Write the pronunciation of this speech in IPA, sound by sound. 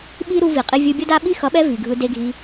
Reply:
ɓ i˦ ɾ u˧ v i˨ qʼ i˧ vʲ ɯ˧ bʲ ʌ˦ d a˦ ɓ i˦ x ʌ˨˦ ɓ ɛ˧ v i˨ ɡʱ ɯ˧ d e˧ ɡʱ i˧

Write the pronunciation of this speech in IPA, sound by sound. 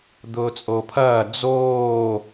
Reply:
d̪ ʊː t͡sʼ o pʰ ɐː d͡z oː

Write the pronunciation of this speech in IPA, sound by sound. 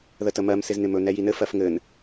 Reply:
ð ə t ə m ɜ m s ɪ z n̪ ɪ m ɵ n̪ ɛ j i n ɘ f ɜ f ŋ ɘ n

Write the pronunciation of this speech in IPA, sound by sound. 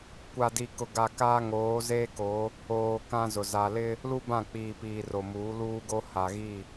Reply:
kʷ a˨ d i˨ k ʊ˨ ɡ a˨ k aː˦ ŋ oː˨˦ z eː˦ k o˨˦ | oː˨ k ã˦ z ʊ˨ z a˨ l ɪ˦ | l u˦ b ã˦˨ k͡p iː˨ p iː˨ r o˨ m uː˨˦ l uː˦ ɡ o˦ h a˨ ɣ i˦˨

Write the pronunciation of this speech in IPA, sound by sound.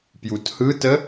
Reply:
p j u t h ɯ t ə

